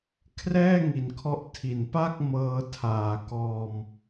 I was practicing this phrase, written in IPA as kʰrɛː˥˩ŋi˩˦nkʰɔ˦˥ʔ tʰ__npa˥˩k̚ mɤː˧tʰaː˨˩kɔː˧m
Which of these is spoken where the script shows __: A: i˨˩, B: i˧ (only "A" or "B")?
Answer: A